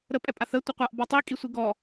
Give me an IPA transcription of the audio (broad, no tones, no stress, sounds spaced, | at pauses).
ɾ ə pʼ ɛ pʼ a θ ə tʷ ə qʷ a ʔ b ɔ tˤ i kʼ i sʷ i ɡ ɔ